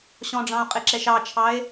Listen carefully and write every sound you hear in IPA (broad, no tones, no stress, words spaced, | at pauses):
ɕɔ̃ɖ͡ʐɑ̃o̯qʼɪǁɛʃ ɑt͡ʃʰɑe̯